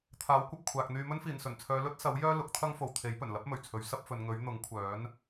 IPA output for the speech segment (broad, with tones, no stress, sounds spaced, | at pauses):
t̪ʰ aː˨˥ w kʷ ɐ˧ p̚ kʷʰ aː˨ k̚ n̪ yː˧ m ɵ˥ n f iː˨˩ n s ɵ˨˩ n t͡sʰ œː˨˧ l ɵ˥ t̚ s ɐ˨˥ w j œː˥ l ʊ˨˥ k̚ t̪ʰ ɐ˥ ŋ f o˨ w t̪ʰ e˨˥ j p ɵ˨˩ n l ɐ˥ p̚ m ɵ˨˩ ɥ t͡sʰ ɵ˨˧ ɥ s ɐ˥ p̚ f ɵ˨˧ n ŋ ɵ˨˥ ɥ n̪ ʊ˨˥ ŋ kʷʰ œː˨˥ n